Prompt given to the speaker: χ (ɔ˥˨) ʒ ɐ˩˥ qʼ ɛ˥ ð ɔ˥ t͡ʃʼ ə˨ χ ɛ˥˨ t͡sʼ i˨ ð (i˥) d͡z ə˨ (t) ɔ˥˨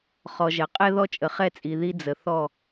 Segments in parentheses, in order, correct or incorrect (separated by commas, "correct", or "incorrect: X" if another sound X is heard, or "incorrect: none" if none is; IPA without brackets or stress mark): incorrect: ɔ˨, correct, incorrect: θ